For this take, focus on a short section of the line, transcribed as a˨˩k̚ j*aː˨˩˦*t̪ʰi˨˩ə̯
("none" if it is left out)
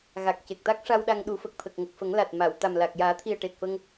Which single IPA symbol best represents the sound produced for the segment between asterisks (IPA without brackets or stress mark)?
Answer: aː˨˩˦